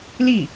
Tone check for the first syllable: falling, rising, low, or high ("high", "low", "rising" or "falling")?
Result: falling